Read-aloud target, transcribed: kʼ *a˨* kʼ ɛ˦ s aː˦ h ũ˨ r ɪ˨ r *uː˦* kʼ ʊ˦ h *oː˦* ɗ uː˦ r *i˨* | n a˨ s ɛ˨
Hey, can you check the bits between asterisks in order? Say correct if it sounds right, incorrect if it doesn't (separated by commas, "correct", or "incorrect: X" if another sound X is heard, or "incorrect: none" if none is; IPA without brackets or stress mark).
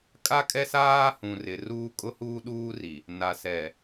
incorrect: a˦, correct, incorrect: uː˦, correct